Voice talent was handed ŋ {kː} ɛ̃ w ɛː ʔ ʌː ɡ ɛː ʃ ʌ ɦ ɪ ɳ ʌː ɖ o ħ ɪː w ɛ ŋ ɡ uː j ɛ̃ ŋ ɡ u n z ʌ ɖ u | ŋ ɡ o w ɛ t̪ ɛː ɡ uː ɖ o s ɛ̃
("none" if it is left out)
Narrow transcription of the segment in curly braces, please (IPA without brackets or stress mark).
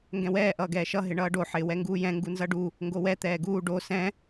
ɡ